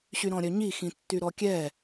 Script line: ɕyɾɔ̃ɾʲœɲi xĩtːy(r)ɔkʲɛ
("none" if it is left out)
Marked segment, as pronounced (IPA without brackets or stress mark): ɾ